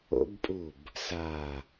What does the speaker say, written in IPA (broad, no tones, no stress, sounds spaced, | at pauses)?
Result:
o̰ b pʼ u b | s a